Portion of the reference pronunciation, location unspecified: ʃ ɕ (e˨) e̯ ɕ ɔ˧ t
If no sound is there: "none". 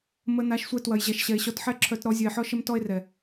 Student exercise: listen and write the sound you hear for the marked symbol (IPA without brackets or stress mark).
ɛ˨